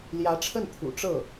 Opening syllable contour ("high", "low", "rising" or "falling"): rising